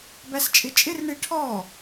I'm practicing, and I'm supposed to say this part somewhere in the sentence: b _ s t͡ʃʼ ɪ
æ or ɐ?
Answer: æ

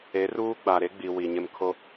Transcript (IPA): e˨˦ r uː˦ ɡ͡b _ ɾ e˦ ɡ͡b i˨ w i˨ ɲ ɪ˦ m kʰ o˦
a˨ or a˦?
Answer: a˨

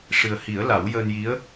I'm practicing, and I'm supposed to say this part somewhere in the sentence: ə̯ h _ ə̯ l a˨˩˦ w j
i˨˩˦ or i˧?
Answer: i˨˩˦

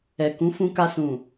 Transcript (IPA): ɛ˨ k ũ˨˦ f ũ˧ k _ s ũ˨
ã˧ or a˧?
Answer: a˧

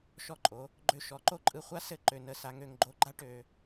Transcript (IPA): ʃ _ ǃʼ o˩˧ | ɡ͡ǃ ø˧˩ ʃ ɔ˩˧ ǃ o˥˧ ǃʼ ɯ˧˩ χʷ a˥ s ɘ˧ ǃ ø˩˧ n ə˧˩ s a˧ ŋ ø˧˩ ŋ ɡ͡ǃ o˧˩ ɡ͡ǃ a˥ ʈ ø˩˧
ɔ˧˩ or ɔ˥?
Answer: ɔ˧˩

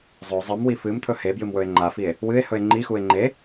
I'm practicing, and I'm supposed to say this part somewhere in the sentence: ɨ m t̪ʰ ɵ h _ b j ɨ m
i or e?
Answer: e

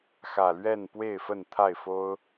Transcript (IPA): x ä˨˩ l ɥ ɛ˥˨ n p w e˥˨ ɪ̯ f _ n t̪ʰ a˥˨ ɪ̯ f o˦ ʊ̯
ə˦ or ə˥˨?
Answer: ə˥˨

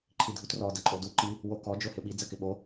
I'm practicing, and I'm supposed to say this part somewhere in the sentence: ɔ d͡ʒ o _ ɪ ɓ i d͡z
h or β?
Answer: h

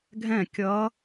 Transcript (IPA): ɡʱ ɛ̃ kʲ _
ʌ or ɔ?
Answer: ʌ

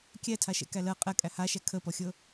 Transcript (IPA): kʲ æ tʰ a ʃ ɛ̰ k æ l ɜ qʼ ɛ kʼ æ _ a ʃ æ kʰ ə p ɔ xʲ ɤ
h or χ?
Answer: h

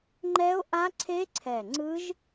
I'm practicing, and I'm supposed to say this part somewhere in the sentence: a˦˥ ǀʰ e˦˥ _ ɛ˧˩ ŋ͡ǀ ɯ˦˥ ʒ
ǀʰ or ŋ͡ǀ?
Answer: ǀʰ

